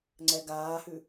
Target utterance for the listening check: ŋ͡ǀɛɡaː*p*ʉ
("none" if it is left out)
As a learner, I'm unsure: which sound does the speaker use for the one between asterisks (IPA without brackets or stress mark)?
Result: h